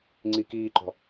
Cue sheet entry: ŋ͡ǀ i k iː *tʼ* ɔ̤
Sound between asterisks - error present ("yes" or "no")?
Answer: yes